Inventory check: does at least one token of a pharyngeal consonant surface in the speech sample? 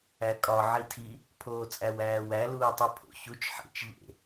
yes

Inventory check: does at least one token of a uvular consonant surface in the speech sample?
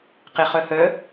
yes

